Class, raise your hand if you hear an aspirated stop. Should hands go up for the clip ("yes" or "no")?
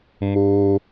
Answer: no